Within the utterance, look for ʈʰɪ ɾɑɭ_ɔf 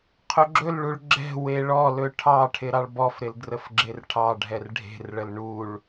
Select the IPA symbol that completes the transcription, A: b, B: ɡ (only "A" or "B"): A